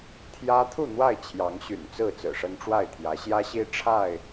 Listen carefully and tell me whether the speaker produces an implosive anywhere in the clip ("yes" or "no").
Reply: no